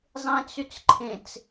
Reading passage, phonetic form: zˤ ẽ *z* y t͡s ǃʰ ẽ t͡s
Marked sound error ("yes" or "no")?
yes